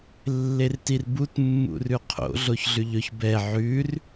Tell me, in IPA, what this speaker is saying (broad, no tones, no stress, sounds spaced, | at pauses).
lː e r t i r b u t mː ṵ r ʉ qʰ o̰ ɮ o ç ɮ ʉ ʎ ɵ ç b ɛ ʕ ʉ r